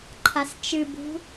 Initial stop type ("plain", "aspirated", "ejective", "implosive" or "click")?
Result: click